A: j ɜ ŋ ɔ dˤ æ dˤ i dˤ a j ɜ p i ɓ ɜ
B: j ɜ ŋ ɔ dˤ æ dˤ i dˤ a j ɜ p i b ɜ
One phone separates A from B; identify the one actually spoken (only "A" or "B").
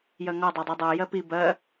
B